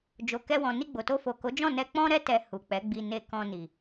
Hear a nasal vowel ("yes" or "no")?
yes